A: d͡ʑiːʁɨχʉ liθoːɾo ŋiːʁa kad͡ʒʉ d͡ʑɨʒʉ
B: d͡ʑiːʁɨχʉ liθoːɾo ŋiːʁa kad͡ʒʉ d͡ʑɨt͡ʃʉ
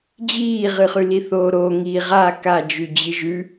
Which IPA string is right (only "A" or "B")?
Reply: A